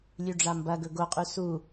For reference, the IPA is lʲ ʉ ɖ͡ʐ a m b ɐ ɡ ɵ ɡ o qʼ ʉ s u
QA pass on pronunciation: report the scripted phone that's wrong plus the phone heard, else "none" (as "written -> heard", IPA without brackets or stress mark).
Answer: none